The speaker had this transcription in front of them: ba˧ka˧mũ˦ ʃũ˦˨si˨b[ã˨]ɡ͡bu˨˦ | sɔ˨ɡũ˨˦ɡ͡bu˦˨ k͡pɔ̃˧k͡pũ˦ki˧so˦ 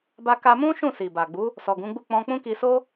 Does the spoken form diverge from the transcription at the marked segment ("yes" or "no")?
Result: yes